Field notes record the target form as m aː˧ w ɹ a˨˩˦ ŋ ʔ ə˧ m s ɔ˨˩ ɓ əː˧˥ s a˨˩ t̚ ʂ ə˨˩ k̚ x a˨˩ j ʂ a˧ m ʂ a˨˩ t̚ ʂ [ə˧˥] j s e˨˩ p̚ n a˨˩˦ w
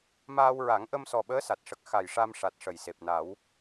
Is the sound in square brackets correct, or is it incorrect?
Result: incorrect: ə˨˩˨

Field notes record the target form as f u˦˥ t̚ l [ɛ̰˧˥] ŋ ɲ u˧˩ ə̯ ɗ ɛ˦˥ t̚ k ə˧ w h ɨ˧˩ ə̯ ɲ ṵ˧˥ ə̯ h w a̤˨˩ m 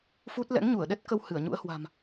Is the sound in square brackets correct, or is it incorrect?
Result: correct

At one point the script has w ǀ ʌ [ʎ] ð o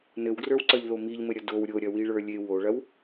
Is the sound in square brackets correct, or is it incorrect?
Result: correct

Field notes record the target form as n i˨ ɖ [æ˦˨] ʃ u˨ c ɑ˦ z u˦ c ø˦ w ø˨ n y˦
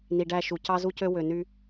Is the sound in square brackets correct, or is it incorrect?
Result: correct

